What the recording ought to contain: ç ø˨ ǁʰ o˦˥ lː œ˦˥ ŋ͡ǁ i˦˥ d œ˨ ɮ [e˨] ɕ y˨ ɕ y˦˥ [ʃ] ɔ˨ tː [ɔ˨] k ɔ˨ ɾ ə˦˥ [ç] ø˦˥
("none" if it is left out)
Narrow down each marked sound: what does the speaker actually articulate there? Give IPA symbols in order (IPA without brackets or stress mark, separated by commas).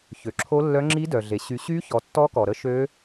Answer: e˨, ç, ɔ˦˥, ʃ